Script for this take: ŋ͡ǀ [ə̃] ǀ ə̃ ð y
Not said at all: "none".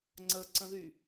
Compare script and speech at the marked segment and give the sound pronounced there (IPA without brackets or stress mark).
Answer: ə